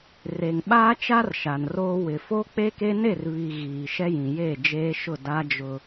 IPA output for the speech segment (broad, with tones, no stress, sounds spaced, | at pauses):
r e˨ ŋ ɓ aː˦ t͡ʃ a˦ r ʃ a˨ n r oː˦ w ɪ˨ f o˦ k͡p e˦ k e˦ n e˦˨ r β i˨ ɣ iː˨ ʃ ɛ˦ j ĩ˨ j eː˦˨ d͡ʒ eː˦ ʃ ʊ˦˨ d a˦ d͡ʒ ʊ˦